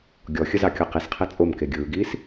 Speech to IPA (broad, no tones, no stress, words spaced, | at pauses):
ɡʲɔxʲəzɑkʲo qisqʰe t͡sʼomke ɡʲɯːɡiːs